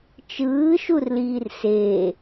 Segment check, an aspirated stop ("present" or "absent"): absent